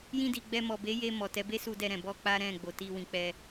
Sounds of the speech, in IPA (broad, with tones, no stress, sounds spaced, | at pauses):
j ĩ˧ d i˨ ɡ͡b ɛ˧ m ɔ˨ b e˨˦ j e˧ m ɔ˨ t ɛ˨˦ b e˦ s u˧ d ɛ˧ ɾ ɛ̃˨ b ɔ˧ k͡p a˦ ɾ ɛ̃˦˨ ɡ͡b o˨ t i˧ w ĩ˨ k͡p ɛ˧